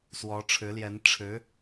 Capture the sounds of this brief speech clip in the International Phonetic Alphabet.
swɔ˧˥ʈ͡ʂʰɻ̩˧˥ljɛ˧˥n ʈ͡ʂʰɻ̩˧˥

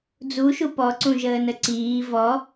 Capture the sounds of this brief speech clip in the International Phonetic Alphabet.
d͡zuʃu pɔǀũʒəːnə ǀiː vɔ

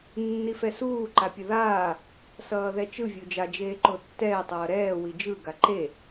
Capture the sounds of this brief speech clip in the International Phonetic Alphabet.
nːifɛsuː ǃapʲʌðaː | sʌːðɛt͡ʃɯ vʲod͡ʒa d͡ʒeːǃotːɛː tˤʌːɾɛː wid͡ʒɯ ɡaǃe

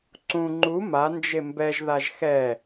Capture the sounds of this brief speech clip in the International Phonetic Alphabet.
ǀũ ŋ͡ǃu ma nd͡ʒembɛʒ ðaʒxɛ

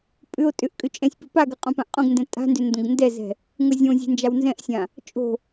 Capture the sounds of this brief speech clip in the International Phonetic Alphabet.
pʼʏo̯ tʼʏʔkʼʏ t͡ʃʼɛ̃sʲpɘ paɡɘ qʼõpãʔqʼõɡndɛ̃ tʼa̤ndʏ ndõɡndɛzɛ̤ | ŋʊzʲõzʲɛ̤ nd͡ʒawnzɛ̃ʔsʲã | t͡ʃʼo̤

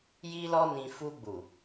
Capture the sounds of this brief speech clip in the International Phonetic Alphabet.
ji˦lɔ˦nĩ˧ fu˧ɡ͡bu˨

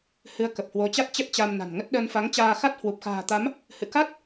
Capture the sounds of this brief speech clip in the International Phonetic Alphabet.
hɨ˨˦ə̯kə˨˩p̚hwo˨˦t͡ɕa˦˥t̚ t͡ɕə˦˥t̚t͡ɕa˧mna̤˨˩nŋə˦˥t̚ ɗəː˧nfa˨˦ŋt͡ɕaː˧xa˦˥t̚ hwu˨˩p̚xa̤ː˨˩t̪a˨˦m | hɨ̰˧˨ka˦˥t̚

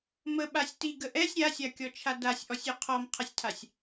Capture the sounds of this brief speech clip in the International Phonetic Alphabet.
məɓasʲ tiɡə ʔɛsʲ ɾʲasʲakʲɔt͡ʃʰa dasʲʔɔsʲø qʰɔmqʰəsʲtʰasʲ

